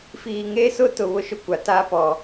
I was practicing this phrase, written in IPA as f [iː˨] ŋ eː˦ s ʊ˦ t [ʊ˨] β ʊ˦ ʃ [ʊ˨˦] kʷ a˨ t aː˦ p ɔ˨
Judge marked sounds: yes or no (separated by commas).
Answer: yes, yes, no